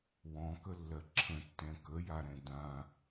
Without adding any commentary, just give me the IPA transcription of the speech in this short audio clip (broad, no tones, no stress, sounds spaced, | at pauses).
w ɔ̃ k ə lː ɜ ǁʰ ə̃ tː ɛ̃ k ə j a ɾ ɛ̃ d ã